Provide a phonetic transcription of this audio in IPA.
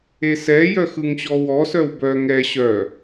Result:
e s ɛ j œ x ɯ ŋ ɕ ɔ w ɔ s œ w b œ ŋ ɛ ɕ œ

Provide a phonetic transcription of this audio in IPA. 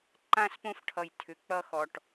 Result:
ǃ ã˥˧ s p õ˥ f ʈʰ ʌ˧˩ j tʰ ʏ˧ k͡p ʌ˥ x ɔ˧ ʈ

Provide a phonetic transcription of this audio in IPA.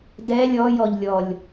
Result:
d ɛ lʲ ɔ j ɔ ʎ lʲ ɔ lʲ

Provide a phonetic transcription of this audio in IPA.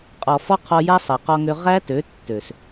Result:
qʼ ɔ˨ f ɔ˦ qʰ ɔ˧ j a˦ sˤ ɛ˨ q ɔ˧ ŋ ø˧ ʁ æ˦ t ø˨˦ tː ø˨ s

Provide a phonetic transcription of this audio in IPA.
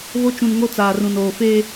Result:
β o˦ t͡ʃ ũ˨ n ŋ o˦ t͡s aː˨ r ũ˨ n oː˨ f eː˦

